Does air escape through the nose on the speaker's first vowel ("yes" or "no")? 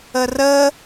no